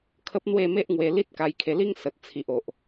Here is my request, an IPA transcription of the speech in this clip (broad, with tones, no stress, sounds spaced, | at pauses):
kʰ ə˦ p̚ n̪ w e˥˧ m e˦ ʔ ŋ w e˧ l i˦ t̚ k a˧ j kʰ e˧ l i˦ ŋ s ə˨ t̚ t͡sʰ i˨ ʔ o˨ ʔ